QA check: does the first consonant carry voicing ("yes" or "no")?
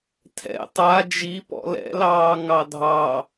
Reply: no